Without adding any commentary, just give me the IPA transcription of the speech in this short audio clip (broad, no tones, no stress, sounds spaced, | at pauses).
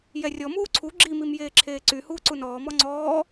j ɛ rʲ ɔ m uː ǀʰ u ɡ͡ǁ i m i m j eː ǁʰ eː ǀ y h uː ǀ u n ɔː m ɔ ŋ͡ǀ ɔː